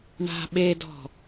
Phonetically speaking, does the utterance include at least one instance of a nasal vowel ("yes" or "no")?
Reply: no